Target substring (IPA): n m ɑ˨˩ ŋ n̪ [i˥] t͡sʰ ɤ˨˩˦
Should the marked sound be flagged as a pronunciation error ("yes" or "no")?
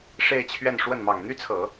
yes